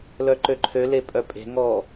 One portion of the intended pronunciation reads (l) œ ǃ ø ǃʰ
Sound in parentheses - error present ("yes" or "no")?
no